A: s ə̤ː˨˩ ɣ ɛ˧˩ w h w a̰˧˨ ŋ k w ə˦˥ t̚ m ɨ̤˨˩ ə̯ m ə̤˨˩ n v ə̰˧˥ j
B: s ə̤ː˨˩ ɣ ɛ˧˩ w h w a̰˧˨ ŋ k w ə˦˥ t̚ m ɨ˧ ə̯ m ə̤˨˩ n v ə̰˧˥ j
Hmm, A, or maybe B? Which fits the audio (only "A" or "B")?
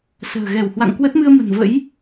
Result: B